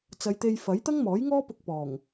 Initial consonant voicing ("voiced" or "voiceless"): voiceless